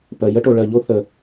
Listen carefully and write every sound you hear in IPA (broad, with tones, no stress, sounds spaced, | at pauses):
p ɜ˧ j ə˥ ʈ o˧ ɭ ɜ˧ ʎ o˥ θ ə˧